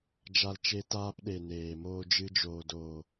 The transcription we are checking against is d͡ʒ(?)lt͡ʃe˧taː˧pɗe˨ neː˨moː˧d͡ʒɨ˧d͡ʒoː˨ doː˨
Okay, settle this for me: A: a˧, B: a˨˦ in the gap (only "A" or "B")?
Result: A